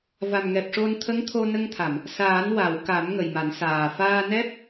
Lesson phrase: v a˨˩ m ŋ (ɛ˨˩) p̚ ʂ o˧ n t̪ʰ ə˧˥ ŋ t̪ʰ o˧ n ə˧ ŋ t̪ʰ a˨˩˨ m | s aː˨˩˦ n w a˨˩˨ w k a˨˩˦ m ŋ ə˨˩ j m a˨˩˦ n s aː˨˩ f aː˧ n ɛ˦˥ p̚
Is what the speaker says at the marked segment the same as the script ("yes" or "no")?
yes